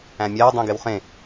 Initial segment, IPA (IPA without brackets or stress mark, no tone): æ̃